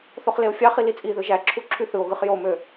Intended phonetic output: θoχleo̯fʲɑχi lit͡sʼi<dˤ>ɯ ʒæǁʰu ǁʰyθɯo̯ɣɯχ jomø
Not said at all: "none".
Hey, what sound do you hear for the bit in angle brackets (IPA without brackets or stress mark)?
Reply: ð